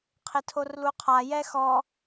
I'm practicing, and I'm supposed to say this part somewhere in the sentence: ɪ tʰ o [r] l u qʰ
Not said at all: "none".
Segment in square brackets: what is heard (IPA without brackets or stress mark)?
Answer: r